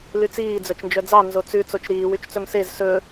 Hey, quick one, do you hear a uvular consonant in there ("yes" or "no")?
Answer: no